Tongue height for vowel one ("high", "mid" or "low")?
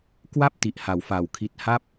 low